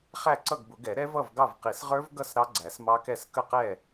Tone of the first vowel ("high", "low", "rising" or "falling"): falling